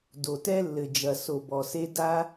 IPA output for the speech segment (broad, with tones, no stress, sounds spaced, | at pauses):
d o˩ t ɛ˥ lː ɘ˩ d͡ʒ ɐ˩ s o˩ b ɔ˩ s e˥ d a˥